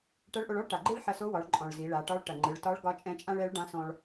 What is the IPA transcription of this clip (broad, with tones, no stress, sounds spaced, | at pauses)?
ʈ ɐ˧˥ ɭ ʔ o˧ ɭ ɔ˥ ɭ ʈ a˩ ɡ͡ǃ ɯ˥ ɭ ħ ɐ˧ s o˧˥ w ɒ˩˧ ɭ ǃʼ ɔ̃˩ ɭ z i˩˧ ɭ a˩˧ ʈ ɒ˧˥ ɭ ʈ ɐ˩ ŋ͡ǃ ɯ˩˧ ɭ t ɒ˧˥ ɭ ɡ ɒ˧˥ t͡ʃʼ ɛ̃˧˥ t͡ʃʼ ã˥ ɭ ɛ˧˥ ɭ ɖ ã˧˥ s ɔ̃˧ ɭ